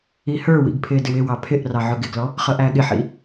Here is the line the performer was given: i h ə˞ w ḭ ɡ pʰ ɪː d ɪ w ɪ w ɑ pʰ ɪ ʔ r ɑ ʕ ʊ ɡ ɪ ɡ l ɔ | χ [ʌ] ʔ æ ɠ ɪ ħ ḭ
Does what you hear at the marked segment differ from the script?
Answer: no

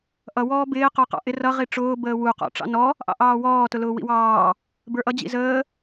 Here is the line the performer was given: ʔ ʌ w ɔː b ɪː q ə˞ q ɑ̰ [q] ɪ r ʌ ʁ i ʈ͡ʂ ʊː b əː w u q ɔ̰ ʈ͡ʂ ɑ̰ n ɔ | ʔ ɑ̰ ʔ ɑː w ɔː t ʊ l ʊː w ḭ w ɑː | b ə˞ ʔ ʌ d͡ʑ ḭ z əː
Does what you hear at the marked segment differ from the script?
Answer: yes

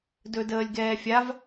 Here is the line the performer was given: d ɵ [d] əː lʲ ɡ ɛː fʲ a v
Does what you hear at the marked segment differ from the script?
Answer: no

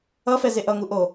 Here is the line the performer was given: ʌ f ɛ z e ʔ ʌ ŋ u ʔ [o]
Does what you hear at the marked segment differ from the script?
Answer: no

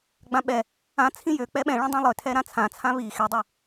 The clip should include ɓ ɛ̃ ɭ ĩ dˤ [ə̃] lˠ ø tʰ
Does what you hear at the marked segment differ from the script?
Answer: yes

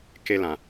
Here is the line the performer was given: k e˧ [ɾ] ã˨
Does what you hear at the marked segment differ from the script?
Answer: yes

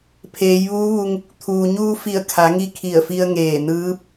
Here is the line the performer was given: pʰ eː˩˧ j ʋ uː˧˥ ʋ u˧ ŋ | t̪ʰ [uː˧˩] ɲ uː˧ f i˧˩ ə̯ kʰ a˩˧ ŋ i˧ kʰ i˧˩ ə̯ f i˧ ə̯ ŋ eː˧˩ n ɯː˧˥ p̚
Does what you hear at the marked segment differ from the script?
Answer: yes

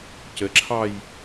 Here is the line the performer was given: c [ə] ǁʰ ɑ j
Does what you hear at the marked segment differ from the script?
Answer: no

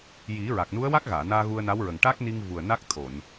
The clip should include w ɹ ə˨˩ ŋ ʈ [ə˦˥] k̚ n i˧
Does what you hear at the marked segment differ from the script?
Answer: yes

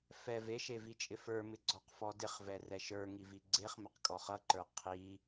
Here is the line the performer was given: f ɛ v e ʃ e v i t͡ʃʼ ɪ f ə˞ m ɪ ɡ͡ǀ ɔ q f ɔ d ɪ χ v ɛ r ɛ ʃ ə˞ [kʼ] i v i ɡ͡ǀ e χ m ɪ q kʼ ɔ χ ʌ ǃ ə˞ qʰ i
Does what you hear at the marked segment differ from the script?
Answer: yes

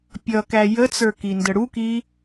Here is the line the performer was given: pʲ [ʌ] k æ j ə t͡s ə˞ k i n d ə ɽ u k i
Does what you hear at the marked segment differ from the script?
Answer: no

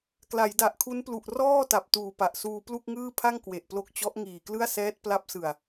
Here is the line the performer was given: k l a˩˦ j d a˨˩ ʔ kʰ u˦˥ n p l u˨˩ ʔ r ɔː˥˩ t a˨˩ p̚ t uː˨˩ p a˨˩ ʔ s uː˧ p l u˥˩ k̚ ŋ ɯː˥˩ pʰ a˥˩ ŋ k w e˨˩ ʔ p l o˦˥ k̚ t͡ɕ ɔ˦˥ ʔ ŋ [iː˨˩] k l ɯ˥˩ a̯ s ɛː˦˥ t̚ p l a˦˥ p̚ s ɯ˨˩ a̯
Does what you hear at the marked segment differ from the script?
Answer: no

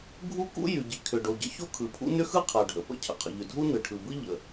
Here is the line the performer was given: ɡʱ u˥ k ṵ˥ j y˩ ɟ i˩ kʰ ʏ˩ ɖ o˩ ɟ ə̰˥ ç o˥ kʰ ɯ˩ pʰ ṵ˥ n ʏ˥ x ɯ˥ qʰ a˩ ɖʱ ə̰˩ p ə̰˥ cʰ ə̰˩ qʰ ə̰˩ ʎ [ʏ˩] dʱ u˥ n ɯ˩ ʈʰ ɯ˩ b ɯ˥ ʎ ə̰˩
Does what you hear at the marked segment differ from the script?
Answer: no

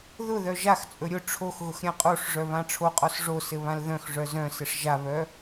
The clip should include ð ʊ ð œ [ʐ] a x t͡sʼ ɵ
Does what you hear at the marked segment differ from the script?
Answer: yes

